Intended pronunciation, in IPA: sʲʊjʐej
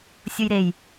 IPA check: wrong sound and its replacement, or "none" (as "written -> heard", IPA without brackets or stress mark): ʐ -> ɾ